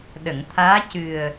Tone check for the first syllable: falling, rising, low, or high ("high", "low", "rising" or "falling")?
low